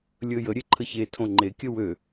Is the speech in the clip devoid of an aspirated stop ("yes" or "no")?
no